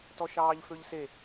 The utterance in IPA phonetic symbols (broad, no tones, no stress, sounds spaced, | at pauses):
t ɔ ʃ ɑː ʎ f ø ʎ s e